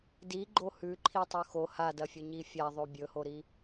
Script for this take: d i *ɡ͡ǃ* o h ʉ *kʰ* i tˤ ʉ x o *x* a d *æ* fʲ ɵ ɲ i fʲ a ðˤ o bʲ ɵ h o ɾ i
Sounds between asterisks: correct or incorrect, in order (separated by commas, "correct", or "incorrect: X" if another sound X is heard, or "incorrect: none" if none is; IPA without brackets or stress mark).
correct, incorrect: ǃʰ, incorrect: h, incorrect: ɐ